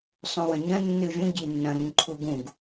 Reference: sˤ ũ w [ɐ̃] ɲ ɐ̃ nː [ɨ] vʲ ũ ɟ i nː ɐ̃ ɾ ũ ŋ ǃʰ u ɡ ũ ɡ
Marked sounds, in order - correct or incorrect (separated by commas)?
correct, correct